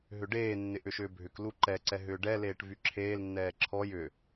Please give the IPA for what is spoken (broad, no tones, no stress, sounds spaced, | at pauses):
ɦ ʏ ɖ eː nː ɪ ʔ ʏ ʃ ʏː bʱ ʏ k l u ǃ ɛ ǀ ɛ ɦ ʏː ɖ ɛ l eː ʈ v y ǁʰ eː l nː ɛː ǁʰ ɔ j ʏ